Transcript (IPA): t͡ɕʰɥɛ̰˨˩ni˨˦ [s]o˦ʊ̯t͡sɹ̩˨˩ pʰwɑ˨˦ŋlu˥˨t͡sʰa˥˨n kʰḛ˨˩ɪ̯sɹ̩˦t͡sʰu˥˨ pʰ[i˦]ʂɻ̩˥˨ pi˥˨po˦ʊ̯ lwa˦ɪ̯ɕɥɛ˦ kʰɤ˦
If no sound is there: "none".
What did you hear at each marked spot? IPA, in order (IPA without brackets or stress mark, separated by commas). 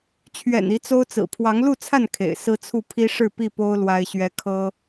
t͡s, i˦